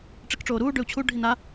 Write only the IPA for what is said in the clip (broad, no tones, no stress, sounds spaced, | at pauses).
ʈ͡ʂ i k ʈ͡ʂ oː ɾ uː ɖ ø u̯ t͡ɕʰ u ɖʱ i n a